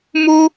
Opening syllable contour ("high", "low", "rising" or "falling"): high